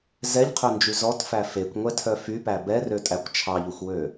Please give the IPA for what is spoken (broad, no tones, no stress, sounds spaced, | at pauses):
z ɛ ʎ qʰ ø n d͡ʒ y z ɔ t f æ f e kʷ ŋʷ ɛ tʰ œ f y p æ b ɛ r ø tʼ æ kʷ t͡ʃʰ ɑ ʎ u xʷ w ø